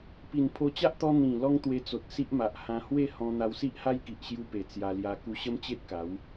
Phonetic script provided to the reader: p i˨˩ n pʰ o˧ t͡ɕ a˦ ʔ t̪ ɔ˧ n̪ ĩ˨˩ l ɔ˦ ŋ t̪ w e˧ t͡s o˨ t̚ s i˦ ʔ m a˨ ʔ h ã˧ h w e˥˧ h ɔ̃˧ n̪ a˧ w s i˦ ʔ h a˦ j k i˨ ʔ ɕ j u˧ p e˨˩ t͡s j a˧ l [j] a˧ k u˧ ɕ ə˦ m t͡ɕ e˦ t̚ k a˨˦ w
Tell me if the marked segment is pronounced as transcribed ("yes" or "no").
yes